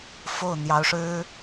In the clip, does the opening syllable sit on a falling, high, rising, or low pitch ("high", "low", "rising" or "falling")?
falling